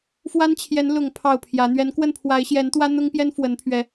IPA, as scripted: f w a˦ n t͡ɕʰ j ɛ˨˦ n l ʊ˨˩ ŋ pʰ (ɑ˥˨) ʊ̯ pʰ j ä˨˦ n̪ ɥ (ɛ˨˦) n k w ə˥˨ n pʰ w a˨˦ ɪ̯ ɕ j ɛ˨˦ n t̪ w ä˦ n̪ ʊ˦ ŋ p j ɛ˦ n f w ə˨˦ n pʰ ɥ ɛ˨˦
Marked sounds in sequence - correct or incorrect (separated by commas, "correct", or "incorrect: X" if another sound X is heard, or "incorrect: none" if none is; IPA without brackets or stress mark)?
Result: correct, correct